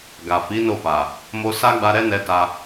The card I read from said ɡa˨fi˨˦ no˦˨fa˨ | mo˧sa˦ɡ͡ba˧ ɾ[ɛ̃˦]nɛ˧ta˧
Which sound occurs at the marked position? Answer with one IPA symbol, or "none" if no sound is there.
ɛ˦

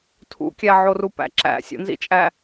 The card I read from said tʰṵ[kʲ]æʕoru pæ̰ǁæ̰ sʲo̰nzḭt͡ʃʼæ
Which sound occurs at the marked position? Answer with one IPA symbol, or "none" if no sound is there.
kʲ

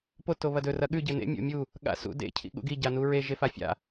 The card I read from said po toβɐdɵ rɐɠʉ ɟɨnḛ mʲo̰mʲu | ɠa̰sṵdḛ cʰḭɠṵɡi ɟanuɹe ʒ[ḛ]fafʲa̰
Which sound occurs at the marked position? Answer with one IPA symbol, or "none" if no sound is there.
e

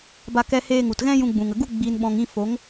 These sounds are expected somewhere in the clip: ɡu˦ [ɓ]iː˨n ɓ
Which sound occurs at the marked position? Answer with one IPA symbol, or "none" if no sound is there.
ɡ͡b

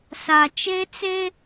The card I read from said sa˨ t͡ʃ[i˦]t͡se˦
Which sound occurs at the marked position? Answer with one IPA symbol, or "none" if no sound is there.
e˦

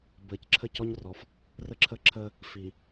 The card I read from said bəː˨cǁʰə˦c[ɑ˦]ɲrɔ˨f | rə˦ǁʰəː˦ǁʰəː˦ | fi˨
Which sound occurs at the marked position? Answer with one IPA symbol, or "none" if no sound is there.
ɔ˦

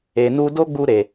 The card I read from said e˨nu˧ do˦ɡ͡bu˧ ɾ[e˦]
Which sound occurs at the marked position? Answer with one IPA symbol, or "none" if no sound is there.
e˨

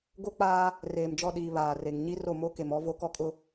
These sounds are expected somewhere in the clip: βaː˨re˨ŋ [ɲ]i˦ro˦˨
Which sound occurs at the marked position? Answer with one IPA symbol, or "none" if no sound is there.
ɲ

